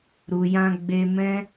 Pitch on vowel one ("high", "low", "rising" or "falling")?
low